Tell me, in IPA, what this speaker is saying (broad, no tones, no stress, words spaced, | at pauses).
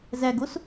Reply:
zæɡos